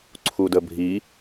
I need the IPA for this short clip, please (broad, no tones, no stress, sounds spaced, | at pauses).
ǀʰ u d ə bʱ i